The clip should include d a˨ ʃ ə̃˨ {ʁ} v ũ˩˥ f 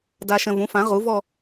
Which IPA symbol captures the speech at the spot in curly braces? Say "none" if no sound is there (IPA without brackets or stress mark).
none